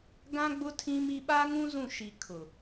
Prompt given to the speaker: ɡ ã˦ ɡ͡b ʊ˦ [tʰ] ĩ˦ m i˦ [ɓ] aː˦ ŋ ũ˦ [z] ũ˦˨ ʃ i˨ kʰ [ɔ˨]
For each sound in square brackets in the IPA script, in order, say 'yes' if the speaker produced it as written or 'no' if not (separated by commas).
yes, yes, yes, no